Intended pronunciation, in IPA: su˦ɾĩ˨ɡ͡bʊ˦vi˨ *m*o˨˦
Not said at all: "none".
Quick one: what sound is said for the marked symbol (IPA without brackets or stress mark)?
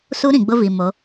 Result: m